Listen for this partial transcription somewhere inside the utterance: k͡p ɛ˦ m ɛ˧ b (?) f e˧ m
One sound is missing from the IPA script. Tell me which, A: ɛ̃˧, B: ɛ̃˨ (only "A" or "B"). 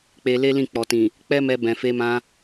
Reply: B